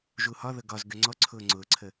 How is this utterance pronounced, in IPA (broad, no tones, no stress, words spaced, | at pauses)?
ʒuhɒðɤ ɡɒz ɡøŋ͡ǀɔǀʰʊː ŋ͡ǀʊːǀʰə